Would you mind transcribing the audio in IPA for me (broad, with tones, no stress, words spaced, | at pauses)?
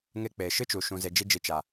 ŋe˧k͡pe˨ ʃɨ˦t͡ʃu˨ ʃũ˨ze˨ d͡ʒi˧d͡ʒi˨ t͡ʃa˨